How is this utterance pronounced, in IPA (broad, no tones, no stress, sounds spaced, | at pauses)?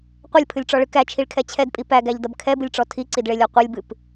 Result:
qʷ ʌ lʲ pʰ ɨ lʲ ʈ͡ʂ ɔ ɭ ɨ k æ t͡ʃʰ i ɭ kʰ ɛ t͡ɕʰ ɛ d pʼ i p æ ɡ æ ʎ d ʌ b kʰ ɛ b ɨ lʲ ʈ͡ʂ ɔ tʰ i ǀ i d ɭ e lʲ ɔ qʷ e lʲ b ɨ p